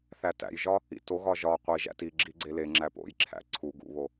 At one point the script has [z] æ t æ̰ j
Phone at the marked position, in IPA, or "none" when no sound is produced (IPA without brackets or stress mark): θ